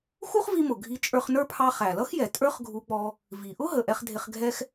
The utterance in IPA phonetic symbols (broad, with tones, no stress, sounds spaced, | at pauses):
x u˥ χ v i˧ m ʊ˩ ɡʱ i˧ t͡ʃʼ ə˞˧ χ n ə˞˥ pʰ ɑ˧ χ æ˩ l ʌ˥ x j ɛ˩ tʼ ə˞˥ χ ɡʱ u˧ k͡p ɔ˧ | v i˩ ʔ ʊ˥ ɦ ə˩ ʔ ɛ˧ χ dʱ ɪ˧ χ ɡʱ ɛ˥ x